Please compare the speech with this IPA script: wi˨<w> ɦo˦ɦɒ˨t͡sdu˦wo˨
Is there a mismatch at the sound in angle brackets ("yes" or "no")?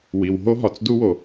no